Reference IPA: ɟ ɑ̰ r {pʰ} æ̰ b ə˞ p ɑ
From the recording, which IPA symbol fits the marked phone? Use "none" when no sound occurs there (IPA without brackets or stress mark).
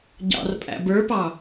pʼ